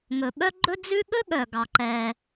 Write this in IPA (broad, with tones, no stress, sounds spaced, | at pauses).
ŋ ɵ˩ ɓ œ˥ ɡ͡ǃ ɵ˥ d͡z ʉ˥ ɠ ɵ˥ ɠ œ˩ ɡ ɑ˩ ǃ ɛ˩